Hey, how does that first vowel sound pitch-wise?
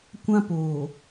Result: high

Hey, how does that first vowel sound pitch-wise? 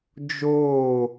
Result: falling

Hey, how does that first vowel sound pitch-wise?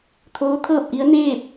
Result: rising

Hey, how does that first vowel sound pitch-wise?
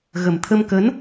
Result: low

